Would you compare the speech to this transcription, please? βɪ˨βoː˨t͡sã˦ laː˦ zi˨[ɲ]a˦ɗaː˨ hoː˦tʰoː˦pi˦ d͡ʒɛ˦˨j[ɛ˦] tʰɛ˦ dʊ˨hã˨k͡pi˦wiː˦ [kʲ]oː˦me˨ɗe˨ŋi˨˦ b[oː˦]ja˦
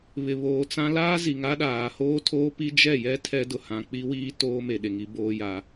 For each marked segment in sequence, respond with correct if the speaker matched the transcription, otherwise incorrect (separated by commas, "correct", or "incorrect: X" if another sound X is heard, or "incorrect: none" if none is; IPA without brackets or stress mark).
incorrect: ŋ, correct, incorrect: t, correct